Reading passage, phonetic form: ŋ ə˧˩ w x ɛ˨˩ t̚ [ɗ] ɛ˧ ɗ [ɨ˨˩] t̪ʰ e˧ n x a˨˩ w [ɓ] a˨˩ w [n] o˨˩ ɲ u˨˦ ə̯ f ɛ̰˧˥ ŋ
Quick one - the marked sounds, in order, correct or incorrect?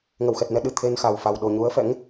incorrect: n, correct, incorrect: f, incorrect: ɗ

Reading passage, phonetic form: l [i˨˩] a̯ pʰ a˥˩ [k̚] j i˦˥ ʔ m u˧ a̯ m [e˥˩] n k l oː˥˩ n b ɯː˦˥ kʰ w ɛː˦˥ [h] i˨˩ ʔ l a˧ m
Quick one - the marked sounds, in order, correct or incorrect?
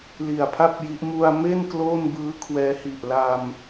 correct, incorrect: p̚, correct, correct

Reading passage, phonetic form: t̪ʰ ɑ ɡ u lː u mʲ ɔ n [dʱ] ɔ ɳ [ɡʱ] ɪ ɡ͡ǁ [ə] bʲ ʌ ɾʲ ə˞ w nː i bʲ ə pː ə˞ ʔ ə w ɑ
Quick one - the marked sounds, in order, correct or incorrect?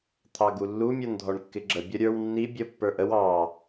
correct, incorrect: kː, correct

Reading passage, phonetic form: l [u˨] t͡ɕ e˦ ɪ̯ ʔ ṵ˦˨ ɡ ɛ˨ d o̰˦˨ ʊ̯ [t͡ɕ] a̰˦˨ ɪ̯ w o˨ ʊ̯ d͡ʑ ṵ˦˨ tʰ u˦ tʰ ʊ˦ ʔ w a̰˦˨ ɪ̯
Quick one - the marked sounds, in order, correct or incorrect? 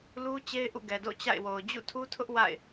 incorrect: u˦, correct

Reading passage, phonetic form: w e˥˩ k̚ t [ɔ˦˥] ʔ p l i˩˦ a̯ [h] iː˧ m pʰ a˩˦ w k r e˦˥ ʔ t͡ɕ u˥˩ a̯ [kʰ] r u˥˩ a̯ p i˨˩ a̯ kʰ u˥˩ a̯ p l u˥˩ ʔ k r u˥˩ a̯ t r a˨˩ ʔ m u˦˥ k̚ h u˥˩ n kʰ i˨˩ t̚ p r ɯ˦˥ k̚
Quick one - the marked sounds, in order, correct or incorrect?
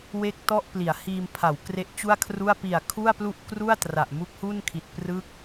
incorrect: ɔ˥˩, correct, correct

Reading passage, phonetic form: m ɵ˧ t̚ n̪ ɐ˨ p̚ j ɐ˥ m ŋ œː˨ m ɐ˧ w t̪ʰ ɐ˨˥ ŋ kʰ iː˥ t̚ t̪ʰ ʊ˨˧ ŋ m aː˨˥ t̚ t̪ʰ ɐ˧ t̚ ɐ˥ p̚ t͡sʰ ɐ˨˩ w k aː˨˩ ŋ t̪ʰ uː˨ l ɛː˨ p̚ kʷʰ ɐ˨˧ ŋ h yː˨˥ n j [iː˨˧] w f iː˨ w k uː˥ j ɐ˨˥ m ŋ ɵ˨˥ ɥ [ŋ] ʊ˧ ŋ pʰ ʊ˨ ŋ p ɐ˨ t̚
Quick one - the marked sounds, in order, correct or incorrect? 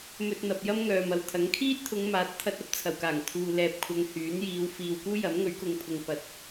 correct, incorrect: k

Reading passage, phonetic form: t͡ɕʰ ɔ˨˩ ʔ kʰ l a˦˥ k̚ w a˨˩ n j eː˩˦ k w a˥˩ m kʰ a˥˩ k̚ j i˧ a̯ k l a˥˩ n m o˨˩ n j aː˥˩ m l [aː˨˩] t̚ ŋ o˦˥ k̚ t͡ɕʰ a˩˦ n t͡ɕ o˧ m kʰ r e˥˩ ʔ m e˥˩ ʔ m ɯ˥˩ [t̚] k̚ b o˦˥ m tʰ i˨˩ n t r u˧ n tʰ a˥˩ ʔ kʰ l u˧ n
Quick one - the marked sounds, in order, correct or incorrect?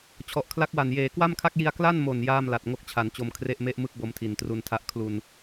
incorrect: a˨˩, incorrect: none

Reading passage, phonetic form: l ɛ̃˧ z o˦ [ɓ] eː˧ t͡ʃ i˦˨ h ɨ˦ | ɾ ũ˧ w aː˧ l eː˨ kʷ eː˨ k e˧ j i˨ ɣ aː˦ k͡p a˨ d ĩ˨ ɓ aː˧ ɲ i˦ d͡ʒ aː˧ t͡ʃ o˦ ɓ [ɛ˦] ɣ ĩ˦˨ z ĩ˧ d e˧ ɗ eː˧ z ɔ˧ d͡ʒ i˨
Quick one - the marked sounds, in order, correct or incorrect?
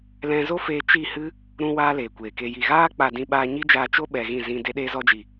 incorrect: f, incorrect: ɛ˧

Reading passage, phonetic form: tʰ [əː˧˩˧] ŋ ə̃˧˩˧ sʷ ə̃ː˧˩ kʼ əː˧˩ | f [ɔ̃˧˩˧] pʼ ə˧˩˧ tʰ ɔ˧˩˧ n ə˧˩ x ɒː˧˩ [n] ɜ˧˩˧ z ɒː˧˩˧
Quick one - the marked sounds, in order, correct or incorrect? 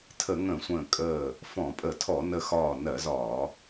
incorrect: ə˧˩˧, correct, correct

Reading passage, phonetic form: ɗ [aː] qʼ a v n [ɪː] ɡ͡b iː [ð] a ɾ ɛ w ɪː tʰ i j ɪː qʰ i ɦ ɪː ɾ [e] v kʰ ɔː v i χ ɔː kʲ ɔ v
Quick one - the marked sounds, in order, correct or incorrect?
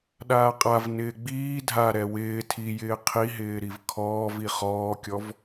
correct, correct, incorrect: dʱ, incorrect: i

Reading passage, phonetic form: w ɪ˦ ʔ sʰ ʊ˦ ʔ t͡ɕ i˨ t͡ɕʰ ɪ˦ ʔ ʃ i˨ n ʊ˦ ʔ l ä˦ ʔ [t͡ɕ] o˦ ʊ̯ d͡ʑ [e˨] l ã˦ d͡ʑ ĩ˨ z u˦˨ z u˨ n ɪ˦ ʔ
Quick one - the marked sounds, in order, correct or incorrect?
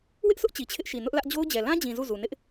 incorrect: d͡ʑ, incorrect: ɛ˨

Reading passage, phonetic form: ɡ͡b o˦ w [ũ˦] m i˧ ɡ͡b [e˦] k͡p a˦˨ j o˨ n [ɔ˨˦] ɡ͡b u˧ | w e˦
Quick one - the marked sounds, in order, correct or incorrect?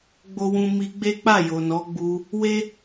correct, correct, correct

